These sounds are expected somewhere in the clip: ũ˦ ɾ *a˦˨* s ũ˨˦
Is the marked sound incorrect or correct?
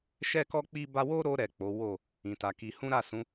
correct